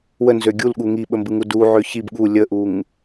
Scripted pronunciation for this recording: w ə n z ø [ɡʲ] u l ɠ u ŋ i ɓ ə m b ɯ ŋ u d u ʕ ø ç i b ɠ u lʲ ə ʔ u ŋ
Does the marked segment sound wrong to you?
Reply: no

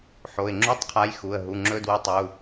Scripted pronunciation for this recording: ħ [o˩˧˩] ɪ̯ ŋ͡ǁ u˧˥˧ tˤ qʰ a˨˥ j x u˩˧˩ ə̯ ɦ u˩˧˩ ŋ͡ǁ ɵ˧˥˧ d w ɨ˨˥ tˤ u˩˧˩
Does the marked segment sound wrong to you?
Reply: no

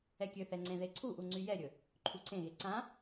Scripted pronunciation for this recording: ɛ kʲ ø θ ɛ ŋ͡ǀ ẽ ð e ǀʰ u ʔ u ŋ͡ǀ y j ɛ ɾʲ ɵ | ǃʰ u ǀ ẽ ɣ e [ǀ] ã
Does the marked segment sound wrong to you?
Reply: no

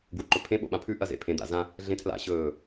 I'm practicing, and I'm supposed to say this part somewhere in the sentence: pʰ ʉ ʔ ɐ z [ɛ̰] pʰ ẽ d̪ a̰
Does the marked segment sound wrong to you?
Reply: yes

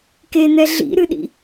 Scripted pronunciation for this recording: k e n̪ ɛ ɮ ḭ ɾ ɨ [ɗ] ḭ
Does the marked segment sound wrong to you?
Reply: no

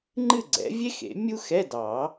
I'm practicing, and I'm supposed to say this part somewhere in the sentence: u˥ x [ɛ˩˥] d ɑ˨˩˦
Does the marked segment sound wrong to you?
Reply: yes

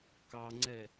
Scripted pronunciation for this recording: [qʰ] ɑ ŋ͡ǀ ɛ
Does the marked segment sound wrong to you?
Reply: yes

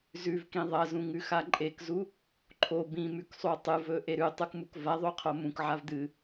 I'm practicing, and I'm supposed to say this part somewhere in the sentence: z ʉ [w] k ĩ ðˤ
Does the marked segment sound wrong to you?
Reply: yes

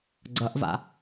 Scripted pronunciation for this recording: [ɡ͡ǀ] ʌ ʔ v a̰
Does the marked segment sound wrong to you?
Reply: no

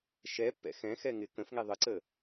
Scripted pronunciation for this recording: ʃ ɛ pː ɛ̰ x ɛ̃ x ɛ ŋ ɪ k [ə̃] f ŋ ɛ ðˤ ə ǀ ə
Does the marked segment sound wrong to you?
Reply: no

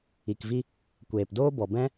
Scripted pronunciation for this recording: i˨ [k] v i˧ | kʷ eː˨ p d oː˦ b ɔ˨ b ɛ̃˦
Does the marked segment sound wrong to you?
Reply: no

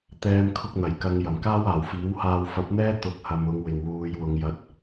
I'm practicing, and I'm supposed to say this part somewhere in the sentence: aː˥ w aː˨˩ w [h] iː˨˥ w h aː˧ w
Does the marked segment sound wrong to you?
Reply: yes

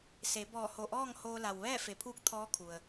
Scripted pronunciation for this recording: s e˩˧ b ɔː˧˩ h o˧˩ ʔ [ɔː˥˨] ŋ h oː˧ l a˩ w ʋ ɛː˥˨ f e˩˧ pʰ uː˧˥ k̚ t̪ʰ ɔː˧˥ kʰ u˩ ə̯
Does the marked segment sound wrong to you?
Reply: no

